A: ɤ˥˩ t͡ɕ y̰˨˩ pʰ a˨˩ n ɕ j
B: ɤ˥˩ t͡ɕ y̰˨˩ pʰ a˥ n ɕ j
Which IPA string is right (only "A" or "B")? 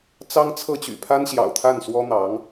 B